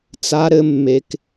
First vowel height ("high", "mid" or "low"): low